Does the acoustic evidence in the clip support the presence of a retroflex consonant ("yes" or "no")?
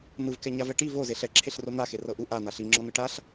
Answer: yes